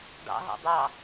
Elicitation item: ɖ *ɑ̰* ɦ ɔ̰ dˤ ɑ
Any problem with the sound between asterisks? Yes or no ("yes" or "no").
no